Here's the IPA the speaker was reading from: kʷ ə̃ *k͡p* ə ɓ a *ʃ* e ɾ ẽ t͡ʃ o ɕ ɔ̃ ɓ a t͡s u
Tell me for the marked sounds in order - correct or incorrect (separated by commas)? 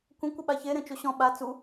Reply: incorrect, incorrect